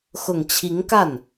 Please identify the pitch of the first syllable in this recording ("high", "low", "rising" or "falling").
low